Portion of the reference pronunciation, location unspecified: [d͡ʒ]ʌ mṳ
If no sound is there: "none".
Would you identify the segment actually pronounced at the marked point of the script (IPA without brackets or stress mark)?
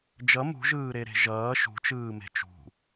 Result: d͡ʒ